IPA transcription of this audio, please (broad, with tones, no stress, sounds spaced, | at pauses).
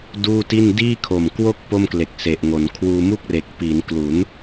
d uː˥˩ t i˥˩ n d iː˥˩ kʰ o˨˩ m k w o˥˩ k̚ p o˥˩ m k l e˨˩ k̚ s e˨˩ ʔ ŋ o˩˦ n kʰ w uː˧ m u˥˩ k̚ r e˨˩ k̚ p i˩˦ n k l u˩˦ n